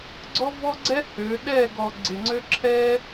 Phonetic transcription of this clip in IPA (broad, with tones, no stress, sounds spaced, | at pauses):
ɡ͡ǀ ɔ˦ v ɔ˦ ɡ͡ǀ ɛ˦ h ø˨˦ ɗ ɛ˦˨ ɡ ɔ˨ ɡ͡ǀ ɪ˨ ŋ͡ǀ ø˦ ǁʰ ɛ˦